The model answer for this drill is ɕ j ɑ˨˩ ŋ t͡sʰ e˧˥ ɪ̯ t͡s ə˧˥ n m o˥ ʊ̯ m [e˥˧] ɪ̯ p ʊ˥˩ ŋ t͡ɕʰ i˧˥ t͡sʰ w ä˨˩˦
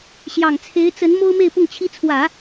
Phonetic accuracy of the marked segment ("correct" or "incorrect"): correct